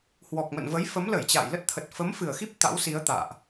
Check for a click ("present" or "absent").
absent